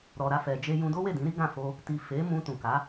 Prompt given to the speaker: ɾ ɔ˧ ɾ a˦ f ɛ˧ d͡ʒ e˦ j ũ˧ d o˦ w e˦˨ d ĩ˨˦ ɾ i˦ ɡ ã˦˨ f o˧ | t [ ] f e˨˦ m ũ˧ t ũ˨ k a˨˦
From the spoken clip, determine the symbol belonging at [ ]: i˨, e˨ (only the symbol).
i˨